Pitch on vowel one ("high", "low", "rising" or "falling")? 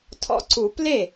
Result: rising